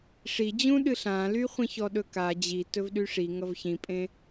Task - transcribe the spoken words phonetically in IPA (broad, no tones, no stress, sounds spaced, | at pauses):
ʂ i d͡ʑ ũ ɗ ɨ ɬ ã l y χʷ ĩ ç ɔ ɗ ɵ k a d͡ʑ i t ɵ v ɗ y ʂ i ŋ ʌ v ç ĩ pʼ ẽ